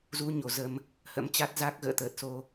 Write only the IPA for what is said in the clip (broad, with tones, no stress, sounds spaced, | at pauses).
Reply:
z u˧ ɲ o˨˩ z ə˧ m | h ə̰˧˥ m t͡ɕ a˦˥ t̚ z a˦˥ k̚ ɣ ə̰ː˧˨ t̪ əː˨˩ t̚ s o˧